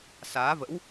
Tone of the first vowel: rising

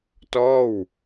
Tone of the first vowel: falling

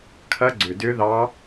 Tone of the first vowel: rising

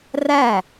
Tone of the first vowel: falling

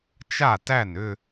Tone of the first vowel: falling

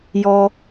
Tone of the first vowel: low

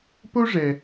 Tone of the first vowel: high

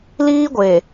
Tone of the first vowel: high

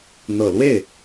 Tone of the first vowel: low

